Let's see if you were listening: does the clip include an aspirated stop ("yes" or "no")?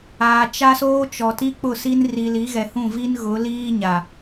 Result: no